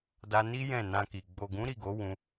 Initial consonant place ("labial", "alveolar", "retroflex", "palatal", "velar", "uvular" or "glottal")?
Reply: alveolar